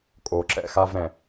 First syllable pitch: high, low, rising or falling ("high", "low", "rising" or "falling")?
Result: low